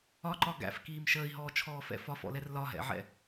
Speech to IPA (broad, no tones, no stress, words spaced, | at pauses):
ɒǃɒ ɡæ̰fkiːm ʃəːi̯ɦɔːt͡ʃʰɔːfɛ̰ fɒfɔ̰lɛr lɒɦɛ̰ʕɛ̰